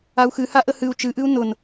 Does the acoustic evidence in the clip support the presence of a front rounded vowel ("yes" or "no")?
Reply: no